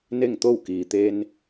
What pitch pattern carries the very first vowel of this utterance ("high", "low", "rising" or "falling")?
falling